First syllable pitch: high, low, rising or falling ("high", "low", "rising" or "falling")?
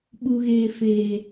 low